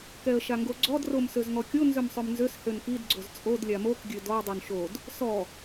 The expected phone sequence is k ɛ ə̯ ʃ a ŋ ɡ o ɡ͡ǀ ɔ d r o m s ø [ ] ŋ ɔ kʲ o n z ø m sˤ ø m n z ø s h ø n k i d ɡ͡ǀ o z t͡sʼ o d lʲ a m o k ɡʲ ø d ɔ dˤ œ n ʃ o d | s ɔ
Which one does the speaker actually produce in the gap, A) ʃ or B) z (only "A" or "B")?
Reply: B